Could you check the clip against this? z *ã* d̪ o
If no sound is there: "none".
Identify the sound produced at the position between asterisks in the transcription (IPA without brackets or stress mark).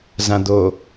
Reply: ã